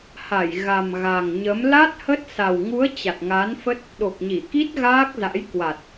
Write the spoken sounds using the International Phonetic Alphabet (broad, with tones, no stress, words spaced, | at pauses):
ha˧˩j ɣa˨˩m ɣa˨˩ŋɲə˨˦m la˦˥t̚hə˦˥t̚ sa˨˩wŋu˨˦ə̯ t͡ɕa˨˩t̚ŋa˨˦nfə˦˥t̚ | ɗo˨˩k̚ɲi˧˩ki˦˥t̚ ɣaː˦˥k̚za̰˧˥j kwa˨˩t̚